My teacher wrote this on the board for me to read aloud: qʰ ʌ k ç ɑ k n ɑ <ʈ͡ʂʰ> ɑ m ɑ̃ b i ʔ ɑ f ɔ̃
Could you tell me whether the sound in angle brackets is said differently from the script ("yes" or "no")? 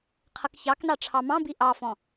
no